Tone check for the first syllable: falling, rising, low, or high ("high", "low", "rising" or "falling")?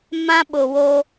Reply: high